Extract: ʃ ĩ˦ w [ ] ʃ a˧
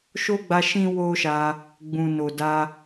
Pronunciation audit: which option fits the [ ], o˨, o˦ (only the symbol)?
o˦